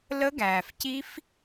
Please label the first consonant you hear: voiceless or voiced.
voiced